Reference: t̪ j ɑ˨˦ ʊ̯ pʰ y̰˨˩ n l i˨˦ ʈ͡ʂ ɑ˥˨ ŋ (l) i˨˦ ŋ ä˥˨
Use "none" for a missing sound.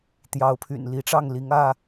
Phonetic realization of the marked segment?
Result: l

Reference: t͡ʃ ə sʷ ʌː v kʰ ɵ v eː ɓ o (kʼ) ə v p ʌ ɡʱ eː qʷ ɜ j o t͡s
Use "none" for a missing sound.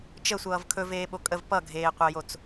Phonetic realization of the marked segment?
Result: kʼ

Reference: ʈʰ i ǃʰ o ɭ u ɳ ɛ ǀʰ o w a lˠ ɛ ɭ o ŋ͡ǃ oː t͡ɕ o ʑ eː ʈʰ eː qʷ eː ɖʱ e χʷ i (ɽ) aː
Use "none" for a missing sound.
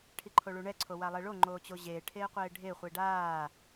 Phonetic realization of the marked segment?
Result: ɖ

